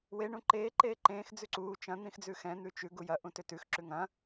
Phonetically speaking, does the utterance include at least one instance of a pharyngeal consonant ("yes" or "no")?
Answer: no